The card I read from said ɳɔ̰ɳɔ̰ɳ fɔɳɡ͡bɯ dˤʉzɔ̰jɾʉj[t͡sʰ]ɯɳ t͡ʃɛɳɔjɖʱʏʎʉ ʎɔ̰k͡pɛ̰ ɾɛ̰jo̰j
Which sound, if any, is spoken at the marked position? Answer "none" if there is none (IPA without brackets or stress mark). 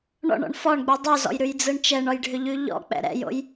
d͡z